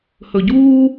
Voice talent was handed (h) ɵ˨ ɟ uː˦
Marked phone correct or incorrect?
correct